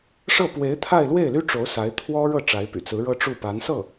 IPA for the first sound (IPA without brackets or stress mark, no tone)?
ʂ